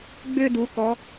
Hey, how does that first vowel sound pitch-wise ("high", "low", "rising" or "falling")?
high